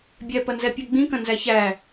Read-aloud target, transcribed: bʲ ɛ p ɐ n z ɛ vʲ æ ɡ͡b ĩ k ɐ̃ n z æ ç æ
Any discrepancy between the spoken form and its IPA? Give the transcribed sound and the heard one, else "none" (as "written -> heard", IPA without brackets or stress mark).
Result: vʲ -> pʲ